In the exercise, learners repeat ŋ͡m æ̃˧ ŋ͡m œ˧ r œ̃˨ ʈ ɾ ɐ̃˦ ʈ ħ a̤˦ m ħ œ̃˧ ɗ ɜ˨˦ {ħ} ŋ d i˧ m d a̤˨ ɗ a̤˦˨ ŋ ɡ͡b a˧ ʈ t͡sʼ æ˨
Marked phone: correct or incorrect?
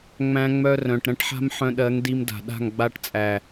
incorrect